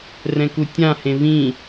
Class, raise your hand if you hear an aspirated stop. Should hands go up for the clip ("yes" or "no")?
no